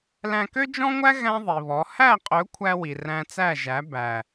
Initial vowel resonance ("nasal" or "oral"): nasal